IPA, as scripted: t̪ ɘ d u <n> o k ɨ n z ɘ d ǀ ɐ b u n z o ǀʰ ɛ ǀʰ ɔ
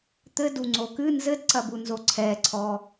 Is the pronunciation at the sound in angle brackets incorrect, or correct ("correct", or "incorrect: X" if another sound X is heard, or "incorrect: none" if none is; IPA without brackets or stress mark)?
incorrect: ŋ͡ǀ